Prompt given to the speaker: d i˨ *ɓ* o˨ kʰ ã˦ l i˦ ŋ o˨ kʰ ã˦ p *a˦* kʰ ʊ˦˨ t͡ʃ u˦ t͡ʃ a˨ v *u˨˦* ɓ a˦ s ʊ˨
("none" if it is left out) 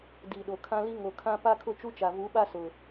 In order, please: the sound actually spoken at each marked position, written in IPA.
ɗ, a˦, u˨˦

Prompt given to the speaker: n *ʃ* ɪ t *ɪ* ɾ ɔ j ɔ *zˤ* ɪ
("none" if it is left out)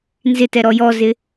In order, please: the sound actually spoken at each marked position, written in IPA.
z, ɛ, z

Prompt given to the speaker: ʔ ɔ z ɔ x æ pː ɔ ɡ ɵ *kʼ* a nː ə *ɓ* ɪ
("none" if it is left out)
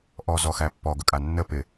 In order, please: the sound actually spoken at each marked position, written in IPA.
kʼ, p

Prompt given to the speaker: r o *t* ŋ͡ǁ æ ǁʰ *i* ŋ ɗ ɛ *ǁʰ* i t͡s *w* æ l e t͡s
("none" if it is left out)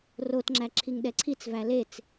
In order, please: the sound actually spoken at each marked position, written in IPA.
t, i, ǀʰ, v

